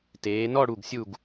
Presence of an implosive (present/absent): absent